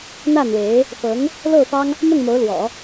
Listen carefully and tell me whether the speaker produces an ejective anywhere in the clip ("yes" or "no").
no